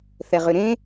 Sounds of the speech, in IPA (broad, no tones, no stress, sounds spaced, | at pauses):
θ ɛ ʁ ʏ ɾ ẽ